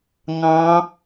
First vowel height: low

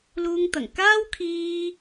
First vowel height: high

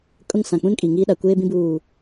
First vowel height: high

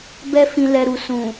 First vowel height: mid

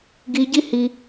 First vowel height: high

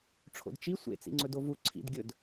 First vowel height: mid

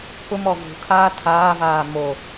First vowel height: high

